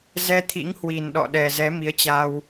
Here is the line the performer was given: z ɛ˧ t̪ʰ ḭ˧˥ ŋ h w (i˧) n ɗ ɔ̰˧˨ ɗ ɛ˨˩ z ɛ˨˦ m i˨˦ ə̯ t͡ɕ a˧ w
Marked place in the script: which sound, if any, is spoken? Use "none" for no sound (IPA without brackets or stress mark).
i˨˩